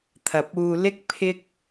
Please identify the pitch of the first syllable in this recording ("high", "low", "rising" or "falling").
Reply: low